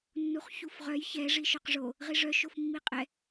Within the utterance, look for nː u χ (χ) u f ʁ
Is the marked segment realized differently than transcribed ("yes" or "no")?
yes